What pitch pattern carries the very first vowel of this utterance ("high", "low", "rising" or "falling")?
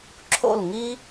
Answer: falling